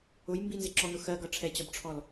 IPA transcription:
ʊ j m b i n z ɪ ǁ ɔ n ʊ x ɜ ɡ ʌ ʈ͡ʂʰ ɛ t͡ɕ ɒ b ʈ͡ʂʰ ɔ l

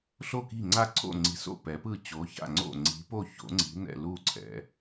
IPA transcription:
ɬ o˥˩ k i̤˥˩ ŋ͡ǀ a˥˩ ǀʰ o̰˥˩ ŋ͡ǀ i̤˨˥ s o̰˥˩ p ɛ˨˥ p ɯ˥˩ t͡ɕ o˨˥ ç a̰˥˩ ŋ͡ǀ o̰˥˩ ŋ͡ǀ i̤˨˥ p o˥˩ ç o̰˨˥ ŋ͡ǀ i̤˨˥ n̪ ɛ̰˥˩ l u˥˩ ǀʰ ɛ̰˨˥

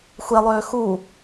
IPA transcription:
xʷ e lˠ øː x u

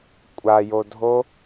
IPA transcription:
kʷʼ a j o dʱ o

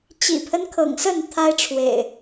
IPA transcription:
t͡ɕ ḭ˨˩ pʰ ə˦ n kʰ ɤ̰˨˩ ŋ s ə˥˨ n t̪ʰ a˦ ɪ̯ ʈ͡ʂʰ w ḛ˨˩ ɪ̯

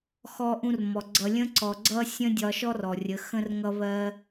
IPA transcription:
x ɔ˧ ʔ ũ˧ r m ɔ˨ ɡ͡ǀ ʌ˧ lʲ ə̃˦ ǀ ɔ˨ ɡ͡ǀ ʌ˦ sʲ ə̃˦ dʲ ɒ˨ ʃ ɔ˧ r ɔ˨ rʲ ə˨˦ x ə̃˦ r ŋ ʌ˦ β ɜ˧

